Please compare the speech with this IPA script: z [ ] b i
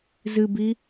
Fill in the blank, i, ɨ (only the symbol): ɨ